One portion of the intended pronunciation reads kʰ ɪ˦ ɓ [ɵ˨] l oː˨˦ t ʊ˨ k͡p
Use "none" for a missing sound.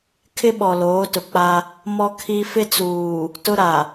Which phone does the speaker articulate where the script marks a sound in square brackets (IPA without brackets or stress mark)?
ɔ˨